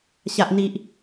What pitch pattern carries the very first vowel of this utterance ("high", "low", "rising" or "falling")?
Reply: low